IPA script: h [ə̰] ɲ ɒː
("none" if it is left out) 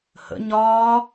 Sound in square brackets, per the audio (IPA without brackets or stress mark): ə̰